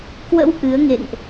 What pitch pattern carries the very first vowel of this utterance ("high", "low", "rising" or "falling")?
rising